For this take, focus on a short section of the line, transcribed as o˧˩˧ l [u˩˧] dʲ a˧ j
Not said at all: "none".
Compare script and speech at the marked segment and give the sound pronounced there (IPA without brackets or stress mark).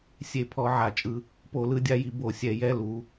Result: ɯ˩˧